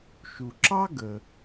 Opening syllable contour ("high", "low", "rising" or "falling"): low